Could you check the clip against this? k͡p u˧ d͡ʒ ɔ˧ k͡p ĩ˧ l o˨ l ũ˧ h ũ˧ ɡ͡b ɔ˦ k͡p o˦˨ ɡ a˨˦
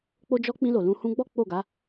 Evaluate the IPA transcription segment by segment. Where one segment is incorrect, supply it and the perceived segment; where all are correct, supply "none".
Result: u˧ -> o˧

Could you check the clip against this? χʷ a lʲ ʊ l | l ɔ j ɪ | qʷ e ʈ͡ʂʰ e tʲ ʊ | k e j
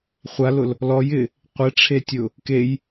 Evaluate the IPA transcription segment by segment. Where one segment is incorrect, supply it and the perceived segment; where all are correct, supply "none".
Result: lʲ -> l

